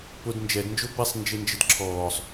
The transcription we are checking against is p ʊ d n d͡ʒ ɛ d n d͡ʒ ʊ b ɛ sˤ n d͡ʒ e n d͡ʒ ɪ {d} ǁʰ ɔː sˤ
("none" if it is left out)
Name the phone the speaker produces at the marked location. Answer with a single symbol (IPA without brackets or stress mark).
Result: d